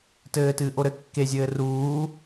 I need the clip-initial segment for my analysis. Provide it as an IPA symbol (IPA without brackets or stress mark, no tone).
t